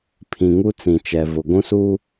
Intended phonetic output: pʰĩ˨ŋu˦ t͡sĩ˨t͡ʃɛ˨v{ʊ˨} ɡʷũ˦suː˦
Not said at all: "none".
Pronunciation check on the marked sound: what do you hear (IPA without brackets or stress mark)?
ʊ˨